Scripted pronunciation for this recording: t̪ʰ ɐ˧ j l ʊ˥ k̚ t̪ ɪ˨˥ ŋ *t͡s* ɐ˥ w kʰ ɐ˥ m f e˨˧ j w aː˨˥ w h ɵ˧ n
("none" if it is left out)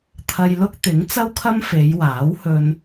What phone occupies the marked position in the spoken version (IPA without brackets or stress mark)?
t͡s